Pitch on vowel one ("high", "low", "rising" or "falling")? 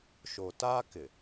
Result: low